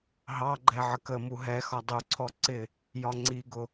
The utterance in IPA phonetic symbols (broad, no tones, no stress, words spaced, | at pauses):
ɦɑɡ͡ǃɛ ʕəkəmu ɦɛ xɒdˤuǀʰɔ ǀɪ | jɒŋ͡ǀiɡʊ